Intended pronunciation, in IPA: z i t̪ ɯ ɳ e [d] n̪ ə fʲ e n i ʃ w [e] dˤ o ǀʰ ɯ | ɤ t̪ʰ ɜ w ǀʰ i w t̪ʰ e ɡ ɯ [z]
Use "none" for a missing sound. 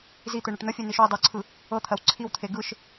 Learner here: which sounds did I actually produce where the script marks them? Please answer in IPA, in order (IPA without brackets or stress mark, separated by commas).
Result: ʈ, i, ʃ